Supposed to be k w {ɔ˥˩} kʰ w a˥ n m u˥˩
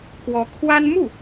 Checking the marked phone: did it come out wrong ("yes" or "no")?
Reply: yes